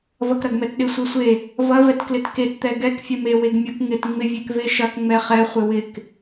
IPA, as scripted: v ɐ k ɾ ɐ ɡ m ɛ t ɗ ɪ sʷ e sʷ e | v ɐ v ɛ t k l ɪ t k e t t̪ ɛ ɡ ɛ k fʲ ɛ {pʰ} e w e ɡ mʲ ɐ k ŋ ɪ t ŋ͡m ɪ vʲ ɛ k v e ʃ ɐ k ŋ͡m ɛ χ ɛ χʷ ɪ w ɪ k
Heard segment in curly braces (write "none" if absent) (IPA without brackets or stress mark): m